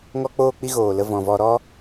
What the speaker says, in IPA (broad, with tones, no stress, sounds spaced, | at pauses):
ŋ ɔ˧ k͡p oː˧ k͡p i˧ ɣ oː˨ l ə˧ v ɔ̃˨ v ɔ˧ ɾ ɔ˧